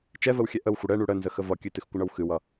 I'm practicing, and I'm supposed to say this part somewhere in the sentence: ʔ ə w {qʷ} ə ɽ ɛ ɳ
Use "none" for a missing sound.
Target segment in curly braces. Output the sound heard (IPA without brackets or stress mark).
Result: xʷ